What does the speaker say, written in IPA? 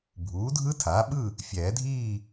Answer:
bʱ uː˩˥ dʱ ɯ˦˥ tʰ aː˩˥ ɓ ɯ˥˨ | fʲ ɛː˨˩˦ dʱ iː˥˨

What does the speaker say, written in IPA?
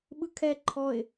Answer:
ɓ ɯ kʰ ɛ ǃʰ ɔ ɪ̯

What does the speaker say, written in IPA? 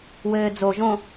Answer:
w ɘː d͡z o ʒ õ

